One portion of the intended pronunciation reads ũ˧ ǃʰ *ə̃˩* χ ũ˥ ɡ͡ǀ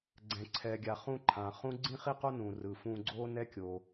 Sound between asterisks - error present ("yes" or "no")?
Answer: yes